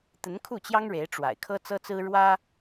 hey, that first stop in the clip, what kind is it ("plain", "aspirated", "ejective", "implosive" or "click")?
plain